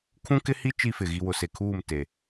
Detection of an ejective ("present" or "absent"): absent